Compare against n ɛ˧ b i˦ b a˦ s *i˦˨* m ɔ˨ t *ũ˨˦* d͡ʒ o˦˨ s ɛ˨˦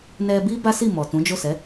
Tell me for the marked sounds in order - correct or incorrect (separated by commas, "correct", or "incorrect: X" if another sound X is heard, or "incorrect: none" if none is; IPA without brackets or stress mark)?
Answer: correct, correct